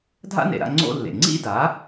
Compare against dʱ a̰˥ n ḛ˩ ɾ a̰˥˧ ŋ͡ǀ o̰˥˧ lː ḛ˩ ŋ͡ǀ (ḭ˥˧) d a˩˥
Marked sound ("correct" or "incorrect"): correct